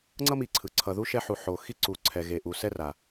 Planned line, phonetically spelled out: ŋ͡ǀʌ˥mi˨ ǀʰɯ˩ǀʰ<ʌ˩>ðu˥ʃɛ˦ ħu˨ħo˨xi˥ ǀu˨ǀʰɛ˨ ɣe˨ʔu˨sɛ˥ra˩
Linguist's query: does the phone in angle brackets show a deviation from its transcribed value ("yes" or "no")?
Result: yes